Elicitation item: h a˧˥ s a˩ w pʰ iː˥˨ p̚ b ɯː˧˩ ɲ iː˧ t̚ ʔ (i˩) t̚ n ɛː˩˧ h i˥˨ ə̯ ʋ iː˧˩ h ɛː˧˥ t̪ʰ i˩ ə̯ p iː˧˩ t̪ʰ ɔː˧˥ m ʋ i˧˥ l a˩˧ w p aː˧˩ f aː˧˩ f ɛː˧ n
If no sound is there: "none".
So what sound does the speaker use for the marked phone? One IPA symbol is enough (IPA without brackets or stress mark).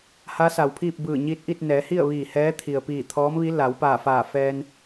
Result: i˥˨